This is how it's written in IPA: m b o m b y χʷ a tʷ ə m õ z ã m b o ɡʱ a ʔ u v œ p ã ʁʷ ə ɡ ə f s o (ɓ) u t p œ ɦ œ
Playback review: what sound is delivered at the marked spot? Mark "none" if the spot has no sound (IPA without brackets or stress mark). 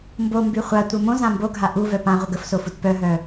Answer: f